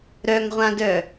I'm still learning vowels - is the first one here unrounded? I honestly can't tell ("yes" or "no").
no